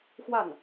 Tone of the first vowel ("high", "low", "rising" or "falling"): falling